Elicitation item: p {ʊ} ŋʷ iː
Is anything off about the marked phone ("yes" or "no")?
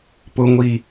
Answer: no